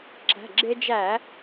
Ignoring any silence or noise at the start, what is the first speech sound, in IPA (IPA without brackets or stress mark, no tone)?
ǁ